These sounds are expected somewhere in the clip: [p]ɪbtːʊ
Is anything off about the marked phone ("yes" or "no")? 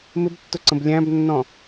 yes